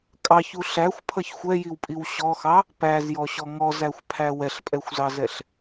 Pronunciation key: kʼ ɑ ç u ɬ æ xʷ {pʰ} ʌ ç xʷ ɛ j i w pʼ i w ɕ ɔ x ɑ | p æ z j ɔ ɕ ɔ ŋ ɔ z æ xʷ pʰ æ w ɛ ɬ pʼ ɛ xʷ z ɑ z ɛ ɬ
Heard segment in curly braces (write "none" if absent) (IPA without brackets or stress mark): pʰ